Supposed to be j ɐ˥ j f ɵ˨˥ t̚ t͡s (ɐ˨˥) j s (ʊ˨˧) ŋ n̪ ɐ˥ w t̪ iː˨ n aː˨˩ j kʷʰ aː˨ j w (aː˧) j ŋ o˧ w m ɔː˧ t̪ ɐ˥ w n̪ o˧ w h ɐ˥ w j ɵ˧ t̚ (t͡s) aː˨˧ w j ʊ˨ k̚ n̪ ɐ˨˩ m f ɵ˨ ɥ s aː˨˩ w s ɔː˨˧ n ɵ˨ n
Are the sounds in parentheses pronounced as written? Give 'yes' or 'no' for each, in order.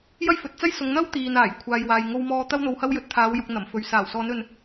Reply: no, yes, no, no

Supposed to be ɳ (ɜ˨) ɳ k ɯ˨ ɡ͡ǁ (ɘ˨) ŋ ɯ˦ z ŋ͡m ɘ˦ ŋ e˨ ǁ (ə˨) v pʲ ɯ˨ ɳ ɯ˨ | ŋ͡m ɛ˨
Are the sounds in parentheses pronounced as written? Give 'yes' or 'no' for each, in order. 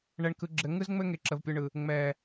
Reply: no, yes, yes

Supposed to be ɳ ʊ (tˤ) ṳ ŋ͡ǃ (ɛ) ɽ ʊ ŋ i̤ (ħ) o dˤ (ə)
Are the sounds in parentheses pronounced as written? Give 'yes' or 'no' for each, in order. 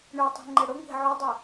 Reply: yes, yes, no, no

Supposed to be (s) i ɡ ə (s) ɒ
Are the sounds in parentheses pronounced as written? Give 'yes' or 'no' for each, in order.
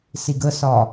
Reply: yes, yes

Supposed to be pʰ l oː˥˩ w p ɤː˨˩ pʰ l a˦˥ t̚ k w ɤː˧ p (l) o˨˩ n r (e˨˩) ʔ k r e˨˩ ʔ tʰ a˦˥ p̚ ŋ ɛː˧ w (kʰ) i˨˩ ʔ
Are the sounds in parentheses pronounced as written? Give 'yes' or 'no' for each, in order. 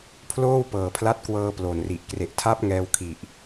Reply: yes, no, yes

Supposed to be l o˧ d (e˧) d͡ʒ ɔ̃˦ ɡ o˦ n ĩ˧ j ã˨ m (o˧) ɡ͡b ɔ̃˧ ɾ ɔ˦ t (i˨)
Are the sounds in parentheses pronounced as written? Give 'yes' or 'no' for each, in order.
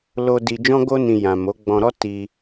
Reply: no, no, no

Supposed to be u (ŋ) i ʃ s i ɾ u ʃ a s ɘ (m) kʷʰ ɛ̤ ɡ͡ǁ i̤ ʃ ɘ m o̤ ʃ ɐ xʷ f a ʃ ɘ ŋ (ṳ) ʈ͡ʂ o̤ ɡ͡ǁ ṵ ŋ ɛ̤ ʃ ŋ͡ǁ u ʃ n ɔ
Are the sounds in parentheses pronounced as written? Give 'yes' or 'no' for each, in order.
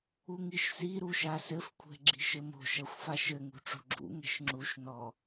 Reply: yes, no, yes

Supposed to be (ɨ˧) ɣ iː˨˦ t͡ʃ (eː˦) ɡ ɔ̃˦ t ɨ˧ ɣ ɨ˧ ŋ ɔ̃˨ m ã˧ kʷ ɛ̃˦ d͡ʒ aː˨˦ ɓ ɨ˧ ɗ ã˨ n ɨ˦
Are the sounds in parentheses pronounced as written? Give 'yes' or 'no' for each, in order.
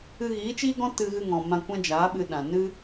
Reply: yes, no

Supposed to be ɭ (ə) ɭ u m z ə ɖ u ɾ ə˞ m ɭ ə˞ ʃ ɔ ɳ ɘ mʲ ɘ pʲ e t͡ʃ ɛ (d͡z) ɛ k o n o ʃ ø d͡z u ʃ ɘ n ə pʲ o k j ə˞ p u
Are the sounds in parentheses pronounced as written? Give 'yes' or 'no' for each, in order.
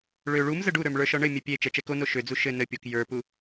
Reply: no, no

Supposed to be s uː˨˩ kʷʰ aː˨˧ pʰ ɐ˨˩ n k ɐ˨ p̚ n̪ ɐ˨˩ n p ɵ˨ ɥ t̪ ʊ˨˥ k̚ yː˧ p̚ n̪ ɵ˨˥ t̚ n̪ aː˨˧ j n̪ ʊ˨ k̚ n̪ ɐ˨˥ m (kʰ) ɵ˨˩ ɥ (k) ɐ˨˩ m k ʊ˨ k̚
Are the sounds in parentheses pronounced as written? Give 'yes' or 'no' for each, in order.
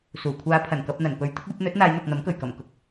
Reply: no, yes

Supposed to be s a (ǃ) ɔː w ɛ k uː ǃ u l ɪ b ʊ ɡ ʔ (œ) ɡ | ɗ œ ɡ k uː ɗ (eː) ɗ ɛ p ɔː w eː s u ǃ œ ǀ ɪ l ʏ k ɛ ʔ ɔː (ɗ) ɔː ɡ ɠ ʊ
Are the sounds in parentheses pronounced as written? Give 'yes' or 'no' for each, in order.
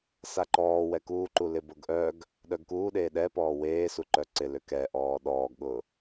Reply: yes, yes, yes, yes

